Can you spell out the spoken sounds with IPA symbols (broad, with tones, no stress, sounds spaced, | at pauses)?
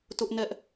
t ʊ˦ ʔ n ɛ˦ ʔ